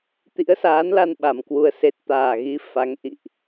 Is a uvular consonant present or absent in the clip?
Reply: absent